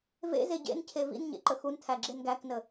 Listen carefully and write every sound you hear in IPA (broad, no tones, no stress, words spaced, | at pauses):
vḛze ɟḛncʰe vḭnɲḛ ǃəxuntʰæ ɡ͡ǁenɡæknə